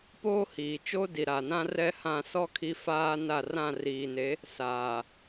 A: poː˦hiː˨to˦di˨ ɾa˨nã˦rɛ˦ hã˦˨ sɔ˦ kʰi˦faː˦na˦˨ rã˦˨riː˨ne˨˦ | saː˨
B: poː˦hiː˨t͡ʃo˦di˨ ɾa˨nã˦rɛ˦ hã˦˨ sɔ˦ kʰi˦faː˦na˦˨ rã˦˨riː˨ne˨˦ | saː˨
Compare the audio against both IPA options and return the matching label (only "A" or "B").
B